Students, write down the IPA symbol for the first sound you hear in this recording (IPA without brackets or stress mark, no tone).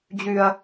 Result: d͡ʑ